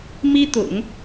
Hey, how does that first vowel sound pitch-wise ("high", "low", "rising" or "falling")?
high